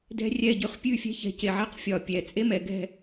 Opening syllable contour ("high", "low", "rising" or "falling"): high